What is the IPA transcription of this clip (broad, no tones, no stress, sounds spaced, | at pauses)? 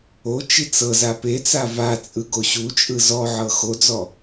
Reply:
o t͡ʃ i t͡s ɤ z a p e t͡s a v a t͡sʼ ɯ ɡ o ɕ u t͡ʃʼ ɯ z ɔ ʕ ɤ x o d͡z ɔ